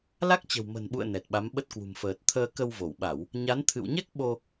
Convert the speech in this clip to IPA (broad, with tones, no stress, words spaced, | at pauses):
la˦˥k̚t͡ɕə̤˨˩wmə̤˨˩nɓṵ˧˨ə̯ nɛ˨˩t̚ɓa˨˦mɓə˦˥t̚kwṳ˨˩m fəː˨˩t̚t̪ʰəː˧ kə˧wvo˧˩wɓa˧˩˨w | ɲa˨˦nt̪ʰɨ̰˧˨wɲɛ˦˥k̚ ɓo˧